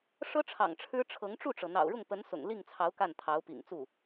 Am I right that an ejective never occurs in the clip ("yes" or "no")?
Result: yes